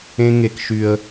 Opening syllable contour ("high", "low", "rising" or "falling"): high